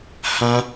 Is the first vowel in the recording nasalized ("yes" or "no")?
yes